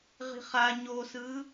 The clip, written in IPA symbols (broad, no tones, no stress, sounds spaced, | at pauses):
ʁ i̤ χ a ɲ o s ɯ